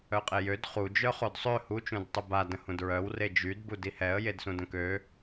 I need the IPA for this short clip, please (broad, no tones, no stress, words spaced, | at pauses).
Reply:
œqʼejød χu d͡ʒœχodsˤø hu t͡ʃũdtˤuba də̃hũdɹœw red͡ʒyd budihɛə̯ jedsũdə̃kø